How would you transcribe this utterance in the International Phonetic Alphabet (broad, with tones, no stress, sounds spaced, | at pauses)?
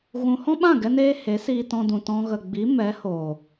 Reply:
ɣ ũ˧ h ɔ̃˦ ɓ ã˦˨ ɡ ɛ˧ n eː˦ h e˨˦ s iː˧ t ɔ̃˧ d ũ˨ t ɔ̃˧ ɣ ə˨ ɡ͡b i˨˦ m ɛ˨˦ h oː˨